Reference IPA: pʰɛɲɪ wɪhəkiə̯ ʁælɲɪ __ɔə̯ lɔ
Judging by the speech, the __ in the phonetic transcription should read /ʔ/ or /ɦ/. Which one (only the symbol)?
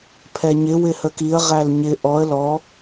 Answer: ʔ